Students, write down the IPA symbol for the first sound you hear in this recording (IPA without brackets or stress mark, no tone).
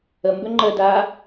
ə